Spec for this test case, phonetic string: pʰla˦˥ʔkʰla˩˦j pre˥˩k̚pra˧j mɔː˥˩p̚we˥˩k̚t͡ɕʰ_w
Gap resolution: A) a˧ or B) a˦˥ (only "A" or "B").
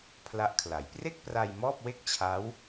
B